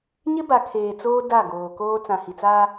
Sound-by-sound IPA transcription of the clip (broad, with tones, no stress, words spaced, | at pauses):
ɲɪ˦ba˨ kʰeː˨t͡soː˦ da˦˨ɡoː˨koː˦ t͡sã˨hi˨t͡saː˦